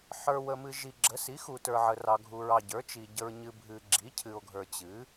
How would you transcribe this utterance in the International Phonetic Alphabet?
ħ ə˞˨ w ə˨ m ɨ˨ ʒ i˨ ɡ͡ǁ ə˩˥ s i˩˥ x u˨ t ə˞˨ ʕ ə˨ r ɑ˨ ɡʱ u˨ ɹ ɑ˨ ɟ ə˞˩˥ t͡ʃ i˨ ɟ ə˨ ɹ ɲ ɨ˨ bʱ ɨ˨ ɡ͡ǁ i˩˥ cʰ ɨ˨ o̯ ɡʱ ə˞˨ t͡ɕ ɨ˩˥

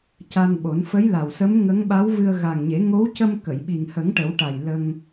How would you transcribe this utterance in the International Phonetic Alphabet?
c a˧ n ɓ o˨˩˦ n f ə˧˥ j l a˨˩ w s ə˧˥ m ŋ ə˧˥ ŋ ɓ a˧˥ w v ɨ˧ ə̯ ɣ a˨˩ ŋ ɲ e˨˩˦ ŋ o˧˥ w c ə˧ m k ə˨˩˨ j ɓ i˨˩ ŋ h ə˨˩˦ ŋ ʈ ə˨˩˦ w ʈ a˨˩ j l ə˧ ŋ

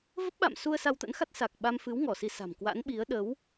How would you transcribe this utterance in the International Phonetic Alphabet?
v ə˦˥ p̚ ɓ a̰˧˨ m s u˧ ə̯ s a˧ w t̪ ə̰˧˥ n x a˦˥ t̚ s a˨˩ k̚ ɓ a˧ m f ɨ˨˦ w ŋ ɔ˧˩ s i˧ s a̤˨˩ m k w a̰˧˥ n ɓ i˨˦ ə̯ ɗ ə˨˦ w

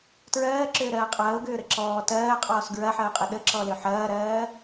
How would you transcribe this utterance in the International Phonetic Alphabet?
t ɹ ɜː ǁ ʏː ɾ ɜː qʼ ɐː ʊ̯ ɡ ʏː ɾ ə ǁ ɔː t ɜː qʼ ɔː s ɡ ɹ ɐ ħ ɜ ʊ̯ qʼ ə ɗ ə ǁ ɔ l ʏ ħ ɐː ɾ ɜː

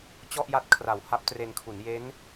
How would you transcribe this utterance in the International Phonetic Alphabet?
t͡ɕ ɔ˥˩ ʔ j a˦˥ t̚ kʰ r a˩˦ w h a˦˥ p̚ t r e˧ n kʰ u˩˦ n j e˦˥ n

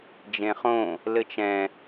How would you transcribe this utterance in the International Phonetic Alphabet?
d͡ʒ ẽ χ õ | l ɘ t͡ʃ ɛ̃

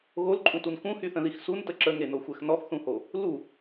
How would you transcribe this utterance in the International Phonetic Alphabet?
ɣ o l ǃʼ ũ t u n k ũ h y θ ə̃ ð i x s u n t ə ǁ ə ŋ e n o xʷ ɛ x n ɔ x θ ũ h o | l u

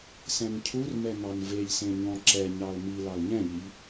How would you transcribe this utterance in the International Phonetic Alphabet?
s ɛ̃ n cʰ u r m ɛ n̪ ɑ n v e ʎ s ẽ ɲ ɔ̃ ǁ ɛ ɲ ɑ l m i l ɑ l ɲ ɛ̃ ʎ i ʎ

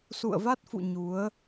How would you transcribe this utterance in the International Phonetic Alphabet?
s ṵ˧˨ ə̯ v a˦˥ t̚ f ṵ˧˨ ɲ u˨˦ ə̯

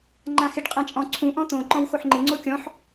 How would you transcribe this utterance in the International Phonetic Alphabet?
ŋ͡ǃ ã x ɪ ɖ qʼ ã t͡ʃʼ ɔ̃ ǀʰ ũ ʔ ɔ̃ t̪ õ ǃ ɔ̃ w x o ħ ŋ͡ǃ ɪ ŋ͡ǀ o kʲ ɔ̃ ħ

